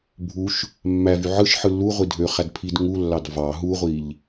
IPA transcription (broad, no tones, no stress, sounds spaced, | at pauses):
bʱ u ʃ | mː æ v y ʕ ɯ ʃ ħ ɯ lː u ʁʷ i dʱ ø χ æ d pʰ i d ŋ u lː ɑ d v ɑ ɦ u ʁʷ i ʎ